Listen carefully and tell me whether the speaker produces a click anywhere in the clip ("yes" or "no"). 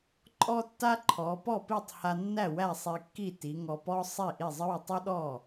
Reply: yes